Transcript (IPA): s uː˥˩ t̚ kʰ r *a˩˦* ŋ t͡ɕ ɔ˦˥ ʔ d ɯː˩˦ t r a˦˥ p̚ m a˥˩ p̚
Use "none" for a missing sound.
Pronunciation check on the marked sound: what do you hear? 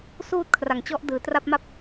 a˩˦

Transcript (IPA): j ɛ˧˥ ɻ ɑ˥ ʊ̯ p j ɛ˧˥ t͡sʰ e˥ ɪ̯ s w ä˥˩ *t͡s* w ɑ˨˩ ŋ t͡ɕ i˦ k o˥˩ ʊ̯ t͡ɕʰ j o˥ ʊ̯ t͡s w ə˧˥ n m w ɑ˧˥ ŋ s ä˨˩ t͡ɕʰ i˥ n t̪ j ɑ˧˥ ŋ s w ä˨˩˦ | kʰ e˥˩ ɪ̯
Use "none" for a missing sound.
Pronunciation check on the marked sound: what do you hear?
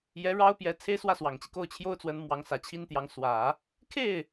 s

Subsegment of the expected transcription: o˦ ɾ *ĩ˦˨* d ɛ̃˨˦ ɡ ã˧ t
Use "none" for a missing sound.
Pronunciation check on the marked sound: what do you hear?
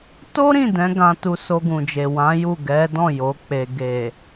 ĩ˦˨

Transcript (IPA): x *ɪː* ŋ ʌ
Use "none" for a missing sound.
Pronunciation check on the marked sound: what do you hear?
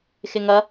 ɪ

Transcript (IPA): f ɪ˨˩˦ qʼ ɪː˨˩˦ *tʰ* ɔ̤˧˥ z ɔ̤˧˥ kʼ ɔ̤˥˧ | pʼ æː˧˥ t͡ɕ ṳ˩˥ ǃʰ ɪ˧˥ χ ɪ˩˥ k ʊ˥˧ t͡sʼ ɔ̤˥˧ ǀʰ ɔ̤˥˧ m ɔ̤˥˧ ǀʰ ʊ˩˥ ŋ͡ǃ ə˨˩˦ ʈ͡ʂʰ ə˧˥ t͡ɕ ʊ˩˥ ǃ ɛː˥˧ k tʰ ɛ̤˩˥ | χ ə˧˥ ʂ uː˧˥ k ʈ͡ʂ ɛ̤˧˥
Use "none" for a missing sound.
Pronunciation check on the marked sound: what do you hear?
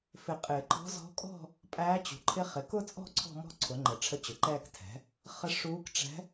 ǃ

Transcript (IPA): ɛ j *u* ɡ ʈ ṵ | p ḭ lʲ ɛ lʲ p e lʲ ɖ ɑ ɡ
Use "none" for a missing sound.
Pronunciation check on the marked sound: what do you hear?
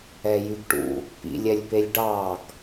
y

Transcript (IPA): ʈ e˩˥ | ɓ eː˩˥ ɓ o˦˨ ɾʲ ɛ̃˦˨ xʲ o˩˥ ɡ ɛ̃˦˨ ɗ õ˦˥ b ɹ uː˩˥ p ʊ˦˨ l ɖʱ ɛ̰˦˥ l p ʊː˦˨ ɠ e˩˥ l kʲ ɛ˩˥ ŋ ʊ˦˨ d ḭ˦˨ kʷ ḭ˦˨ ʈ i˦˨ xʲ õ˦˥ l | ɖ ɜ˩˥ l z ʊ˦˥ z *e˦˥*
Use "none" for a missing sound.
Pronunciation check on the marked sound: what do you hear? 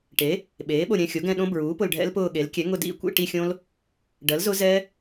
ɛ˦˥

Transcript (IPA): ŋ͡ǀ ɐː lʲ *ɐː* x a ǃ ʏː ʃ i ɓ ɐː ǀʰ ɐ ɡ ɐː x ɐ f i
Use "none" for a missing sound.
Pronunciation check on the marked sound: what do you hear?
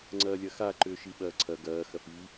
ɐ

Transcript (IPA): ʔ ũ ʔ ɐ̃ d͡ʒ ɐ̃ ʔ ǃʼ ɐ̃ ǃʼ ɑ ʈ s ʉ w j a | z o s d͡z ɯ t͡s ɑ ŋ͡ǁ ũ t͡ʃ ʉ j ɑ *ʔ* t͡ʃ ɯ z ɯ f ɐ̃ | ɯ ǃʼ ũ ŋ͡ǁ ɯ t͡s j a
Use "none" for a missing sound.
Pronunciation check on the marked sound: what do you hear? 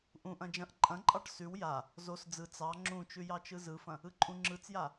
none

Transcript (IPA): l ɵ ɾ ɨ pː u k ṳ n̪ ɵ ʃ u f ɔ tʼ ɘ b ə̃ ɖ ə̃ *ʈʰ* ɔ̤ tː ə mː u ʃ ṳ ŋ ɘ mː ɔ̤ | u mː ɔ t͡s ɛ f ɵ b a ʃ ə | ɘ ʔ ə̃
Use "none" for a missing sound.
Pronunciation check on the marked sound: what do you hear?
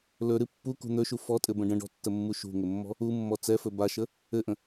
ɖ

